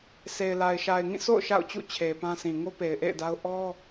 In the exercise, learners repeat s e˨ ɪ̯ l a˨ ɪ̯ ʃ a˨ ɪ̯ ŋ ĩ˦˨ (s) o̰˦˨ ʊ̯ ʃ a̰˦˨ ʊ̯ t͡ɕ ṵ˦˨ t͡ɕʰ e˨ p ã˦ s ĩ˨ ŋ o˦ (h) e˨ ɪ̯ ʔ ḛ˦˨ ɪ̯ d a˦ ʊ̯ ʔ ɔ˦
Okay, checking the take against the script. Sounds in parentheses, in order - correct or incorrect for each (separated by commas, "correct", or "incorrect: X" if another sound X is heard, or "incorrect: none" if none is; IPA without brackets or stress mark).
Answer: correct, incorrect: p